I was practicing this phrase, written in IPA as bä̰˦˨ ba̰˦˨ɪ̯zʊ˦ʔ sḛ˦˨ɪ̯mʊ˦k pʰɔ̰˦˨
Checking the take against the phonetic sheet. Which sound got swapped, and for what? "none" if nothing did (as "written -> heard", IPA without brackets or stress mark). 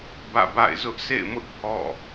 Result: k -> ʔ